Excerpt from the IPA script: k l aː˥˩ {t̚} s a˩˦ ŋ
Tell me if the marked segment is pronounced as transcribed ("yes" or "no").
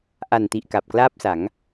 no